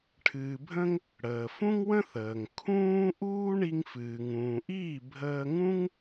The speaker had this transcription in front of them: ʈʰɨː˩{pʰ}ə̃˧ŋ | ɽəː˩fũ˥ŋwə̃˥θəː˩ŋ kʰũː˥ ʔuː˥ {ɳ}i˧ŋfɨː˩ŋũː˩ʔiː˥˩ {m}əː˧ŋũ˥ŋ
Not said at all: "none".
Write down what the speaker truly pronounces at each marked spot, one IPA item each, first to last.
bʱ, ɳ, bʱ

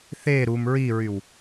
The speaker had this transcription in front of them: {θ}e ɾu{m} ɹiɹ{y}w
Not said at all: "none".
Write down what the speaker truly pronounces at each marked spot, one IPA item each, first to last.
θ, m, y

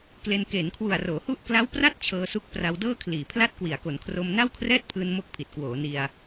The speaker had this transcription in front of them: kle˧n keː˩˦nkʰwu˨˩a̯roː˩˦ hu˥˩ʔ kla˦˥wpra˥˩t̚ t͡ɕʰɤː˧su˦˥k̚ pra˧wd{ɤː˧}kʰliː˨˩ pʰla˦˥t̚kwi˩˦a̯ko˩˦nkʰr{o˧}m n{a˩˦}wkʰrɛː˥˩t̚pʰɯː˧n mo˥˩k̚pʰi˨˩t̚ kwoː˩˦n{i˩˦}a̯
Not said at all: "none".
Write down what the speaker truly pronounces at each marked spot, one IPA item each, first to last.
ɤː˥˩, o˧, a˥˩, i˧

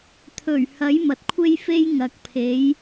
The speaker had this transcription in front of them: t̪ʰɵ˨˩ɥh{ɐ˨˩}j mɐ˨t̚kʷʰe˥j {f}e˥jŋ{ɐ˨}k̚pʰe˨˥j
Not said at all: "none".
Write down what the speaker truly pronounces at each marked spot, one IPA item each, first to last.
ɐ˨˥, f, ɐ˨

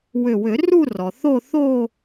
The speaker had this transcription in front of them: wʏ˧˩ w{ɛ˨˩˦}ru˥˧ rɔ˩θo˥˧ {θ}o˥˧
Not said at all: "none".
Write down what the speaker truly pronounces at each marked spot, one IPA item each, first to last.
ʏ˨˩˦, θ

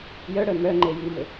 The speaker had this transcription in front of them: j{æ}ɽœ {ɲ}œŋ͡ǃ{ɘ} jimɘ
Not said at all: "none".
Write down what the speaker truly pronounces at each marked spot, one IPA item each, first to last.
œ, m, e

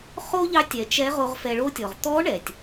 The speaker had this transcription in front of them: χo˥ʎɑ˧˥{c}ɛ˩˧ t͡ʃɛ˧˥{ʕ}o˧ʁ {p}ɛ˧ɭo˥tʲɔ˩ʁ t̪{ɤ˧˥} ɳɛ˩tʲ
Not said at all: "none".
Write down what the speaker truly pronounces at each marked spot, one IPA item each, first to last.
tʲ, ʁ, f, ɔ˧˥

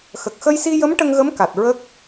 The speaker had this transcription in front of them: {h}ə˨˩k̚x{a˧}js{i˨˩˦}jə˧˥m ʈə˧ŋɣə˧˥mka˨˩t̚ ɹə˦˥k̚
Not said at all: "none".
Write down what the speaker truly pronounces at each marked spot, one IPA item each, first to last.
x, ə˧, i˧

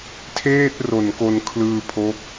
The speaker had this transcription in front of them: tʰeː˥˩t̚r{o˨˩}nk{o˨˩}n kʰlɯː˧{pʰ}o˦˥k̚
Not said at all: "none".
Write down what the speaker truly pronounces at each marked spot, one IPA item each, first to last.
o˨˩, o˧, pʰ

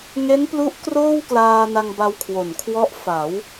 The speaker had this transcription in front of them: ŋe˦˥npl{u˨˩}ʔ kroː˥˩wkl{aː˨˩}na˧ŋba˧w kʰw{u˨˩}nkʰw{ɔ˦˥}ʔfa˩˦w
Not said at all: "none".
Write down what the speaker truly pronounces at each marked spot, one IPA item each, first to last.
u˦˥, aː˧, o˨˩, ɔ˦˥

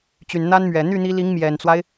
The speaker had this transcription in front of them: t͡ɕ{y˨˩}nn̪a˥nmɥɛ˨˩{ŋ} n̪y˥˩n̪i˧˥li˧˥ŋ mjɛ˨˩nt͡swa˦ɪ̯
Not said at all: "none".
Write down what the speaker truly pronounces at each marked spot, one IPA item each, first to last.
y˨˩, none

